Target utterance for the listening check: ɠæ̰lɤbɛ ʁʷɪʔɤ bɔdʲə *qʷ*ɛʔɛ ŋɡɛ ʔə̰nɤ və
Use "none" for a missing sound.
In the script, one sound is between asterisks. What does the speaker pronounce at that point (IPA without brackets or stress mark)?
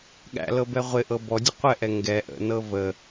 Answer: qʷ